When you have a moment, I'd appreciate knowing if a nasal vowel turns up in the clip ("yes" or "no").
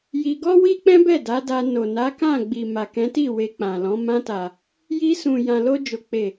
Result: yes